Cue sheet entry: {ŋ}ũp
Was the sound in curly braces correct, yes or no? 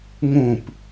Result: yes